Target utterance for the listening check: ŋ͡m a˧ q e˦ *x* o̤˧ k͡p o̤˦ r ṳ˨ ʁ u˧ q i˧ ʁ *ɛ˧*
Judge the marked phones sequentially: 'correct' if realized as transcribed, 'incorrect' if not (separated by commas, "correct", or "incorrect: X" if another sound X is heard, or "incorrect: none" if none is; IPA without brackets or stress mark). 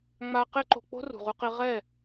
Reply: incorrect: ǃ, incorrect: ɛ˦˨